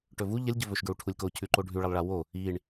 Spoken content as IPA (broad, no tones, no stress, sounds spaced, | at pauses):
ʈ ɵ v u ʎ ɐ lʲ ɟ ɵ v ɵ ʃ ɡ ɹ u ʈʰ u lʲ k o cʰ ʉ ǃ o ɖʱ ʉ ɭ ɐ lˠ ɭ a w o | i ɳ